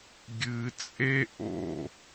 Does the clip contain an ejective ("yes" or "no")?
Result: yes